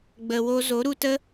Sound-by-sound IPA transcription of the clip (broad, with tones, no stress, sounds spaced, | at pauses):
ɡ͡b ə˨ w o˧ z o˨˦ ɾ u˧ t ə˦